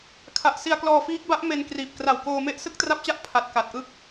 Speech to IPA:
kʰ a˨˩ ʔ s i˧ a̯ k l ɔː˧ f iː˦˥ k̚ b a˦˥ ʔ m e˧ n k r iː˨˩ p̚ k r a˨˩ w k oː˧ m e˥˩ ʔ s ɯ˥˩ k̚ t r a˦˥ p̚ t͡ɕ a˦˥ ʔ pʰ a˨˩ t̚ k a˨˩ t̚ ʔ ɯ˥˩ k̚

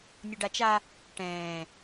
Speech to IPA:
nʲ ʊ ɖ a t͡ʃ a | ʈ ɛ̃ː

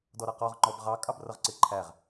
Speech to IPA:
d ɔ ɾ ʌ q ɔ ʁ ŋ͡ǃ ɔ b ʁ ɑ kʼ ɑ b r ʌ ʁ ǀ ɪ ǃʰ æ ʁ

